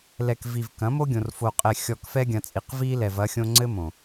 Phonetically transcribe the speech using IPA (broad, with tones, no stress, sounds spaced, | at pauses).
l ɛ˨ k v i˨ v k ɐ̃˨˦ m o˦ ɡʲ õ˨ r f o˨ qʼ ɛ˨ xʲ ɔ˨ k f ɛ˦ ɡʲ ɐ̃˨ t͡sʼ i˨ q v i˦ l ɛ˨ v ɐ˦ xʲ õ˦ ŋ͡ǀ ɘ˦ m õ˨